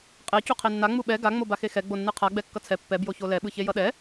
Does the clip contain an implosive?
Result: yes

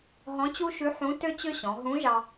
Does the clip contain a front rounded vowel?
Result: yes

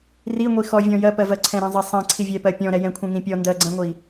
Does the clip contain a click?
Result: yes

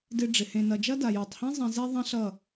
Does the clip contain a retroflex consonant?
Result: yes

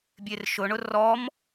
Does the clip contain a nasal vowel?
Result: no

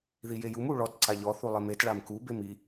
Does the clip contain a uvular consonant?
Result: no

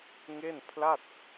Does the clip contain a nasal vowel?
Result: no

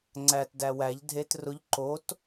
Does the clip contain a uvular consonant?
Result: no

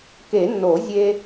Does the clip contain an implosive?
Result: no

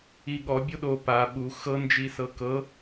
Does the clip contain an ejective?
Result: no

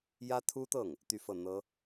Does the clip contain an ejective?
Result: no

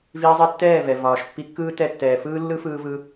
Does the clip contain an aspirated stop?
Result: no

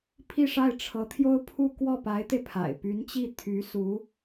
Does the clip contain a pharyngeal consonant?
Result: no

